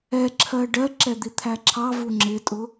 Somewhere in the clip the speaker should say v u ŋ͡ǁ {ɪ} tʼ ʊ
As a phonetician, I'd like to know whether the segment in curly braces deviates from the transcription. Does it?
no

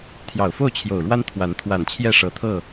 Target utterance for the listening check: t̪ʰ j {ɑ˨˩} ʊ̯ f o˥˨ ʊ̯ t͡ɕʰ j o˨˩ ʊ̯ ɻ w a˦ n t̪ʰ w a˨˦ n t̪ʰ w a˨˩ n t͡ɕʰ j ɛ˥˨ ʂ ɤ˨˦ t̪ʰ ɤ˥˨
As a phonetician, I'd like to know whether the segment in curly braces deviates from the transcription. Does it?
no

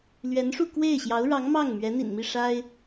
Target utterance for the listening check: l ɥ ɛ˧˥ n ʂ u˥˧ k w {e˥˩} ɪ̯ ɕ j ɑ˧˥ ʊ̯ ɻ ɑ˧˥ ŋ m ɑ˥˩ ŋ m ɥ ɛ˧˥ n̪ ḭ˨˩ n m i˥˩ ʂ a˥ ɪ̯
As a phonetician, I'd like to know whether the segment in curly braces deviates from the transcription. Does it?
no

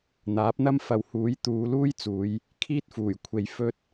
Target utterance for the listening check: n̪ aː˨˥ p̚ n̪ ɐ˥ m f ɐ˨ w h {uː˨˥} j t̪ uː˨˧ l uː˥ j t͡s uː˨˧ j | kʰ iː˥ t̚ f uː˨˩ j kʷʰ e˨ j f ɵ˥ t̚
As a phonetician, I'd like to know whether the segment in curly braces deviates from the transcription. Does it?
no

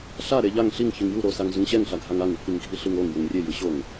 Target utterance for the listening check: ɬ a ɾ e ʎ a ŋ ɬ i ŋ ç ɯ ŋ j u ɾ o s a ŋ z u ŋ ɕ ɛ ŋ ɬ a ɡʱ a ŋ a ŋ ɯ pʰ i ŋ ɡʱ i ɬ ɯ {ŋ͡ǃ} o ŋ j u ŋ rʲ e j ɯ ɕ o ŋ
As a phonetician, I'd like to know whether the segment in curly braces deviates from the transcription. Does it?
yes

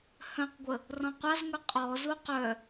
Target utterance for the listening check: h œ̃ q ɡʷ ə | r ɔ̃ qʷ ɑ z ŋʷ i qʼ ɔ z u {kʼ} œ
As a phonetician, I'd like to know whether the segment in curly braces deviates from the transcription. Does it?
yes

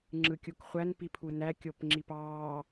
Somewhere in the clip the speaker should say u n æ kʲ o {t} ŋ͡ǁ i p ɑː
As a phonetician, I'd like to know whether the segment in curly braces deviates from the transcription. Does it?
yes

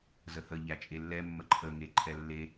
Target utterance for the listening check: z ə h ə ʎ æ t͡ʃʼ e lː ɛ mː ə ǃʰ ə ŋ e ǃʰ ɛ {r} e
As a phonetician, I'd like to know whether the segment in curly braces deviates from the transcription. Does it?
yes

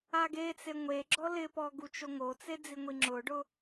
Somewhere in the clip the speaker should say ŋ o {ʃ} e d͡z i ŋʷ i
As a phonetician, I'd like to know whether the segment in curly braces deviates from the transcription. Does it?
yes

